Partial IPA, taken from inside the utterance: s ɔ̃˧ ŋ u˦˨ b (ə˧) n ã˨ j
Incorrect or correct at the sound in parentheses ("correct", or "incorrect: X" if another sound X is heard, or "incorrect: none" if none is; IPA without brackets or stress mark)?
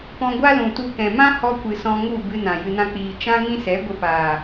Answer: incorrect: ɨ˧